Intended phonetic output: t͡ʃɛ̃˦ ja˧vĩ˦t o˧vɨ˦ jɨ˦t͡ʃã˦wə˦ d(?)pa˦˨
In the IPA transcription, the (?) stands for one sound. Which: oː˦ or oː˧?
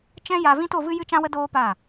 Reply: oː˦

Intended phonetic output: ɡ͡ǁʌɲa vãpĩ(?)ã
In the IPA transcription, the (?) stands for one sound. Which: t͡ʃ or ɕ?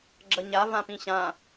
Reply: ɕ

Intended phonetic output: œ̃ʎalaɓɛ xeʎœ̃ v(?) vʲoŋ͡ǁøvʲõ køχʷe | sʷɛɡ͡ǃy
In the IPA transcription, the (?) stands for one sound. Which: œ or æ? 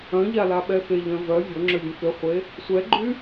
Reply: œ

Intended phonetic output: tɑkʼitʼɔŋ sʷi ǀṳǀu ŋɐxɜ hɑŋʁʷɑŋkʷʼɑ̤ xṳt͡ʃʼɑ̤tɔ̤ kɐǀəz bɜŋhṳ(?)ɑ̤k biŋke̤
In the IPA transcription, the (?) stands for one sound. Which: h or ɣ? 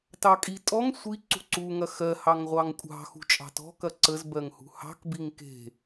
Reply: h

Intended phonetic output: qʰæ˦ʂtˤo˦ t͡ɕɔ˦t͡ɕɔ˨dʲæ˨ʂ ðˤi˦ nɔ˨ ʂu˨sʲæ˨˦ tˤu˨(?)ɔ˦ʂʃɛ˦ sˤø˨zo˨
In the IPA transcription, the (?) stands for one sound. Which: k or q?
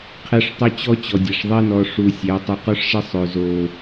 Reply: q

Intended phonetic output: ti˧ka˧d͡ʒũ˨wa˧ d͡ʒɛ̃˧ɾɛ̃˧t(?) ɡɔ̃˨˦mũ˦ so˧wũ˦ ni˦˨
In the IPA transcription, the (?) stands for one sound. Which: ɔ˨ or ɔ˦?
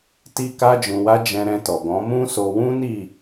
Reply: ɔ˨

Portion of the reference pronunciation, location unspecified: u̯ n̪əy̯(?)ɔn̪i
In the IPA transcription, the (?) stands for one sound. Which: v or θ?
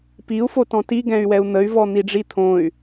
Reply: v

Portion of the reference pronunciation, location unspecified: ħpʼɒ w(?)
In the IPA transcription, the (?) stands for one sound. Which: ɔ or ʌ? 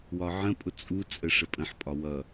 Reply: ʌ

